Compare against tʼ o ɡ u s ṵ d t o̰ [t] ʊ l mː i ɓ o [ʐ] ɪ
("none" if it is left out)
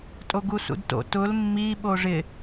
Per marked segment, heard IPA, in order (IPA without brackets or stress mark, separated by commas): t, ʐ